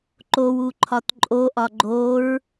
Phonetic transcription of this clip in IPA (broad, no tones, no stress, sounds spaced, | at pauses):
ǃ o w u ǃʰ ɒ t ǃʼ o ʔ ɒ ɡ͡ǃ o ɹ